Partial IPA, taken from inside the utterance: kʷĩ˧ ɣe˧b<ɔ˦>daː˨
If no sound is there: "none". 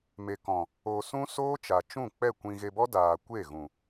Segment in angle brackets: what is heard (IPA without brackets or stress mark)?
ɔ˦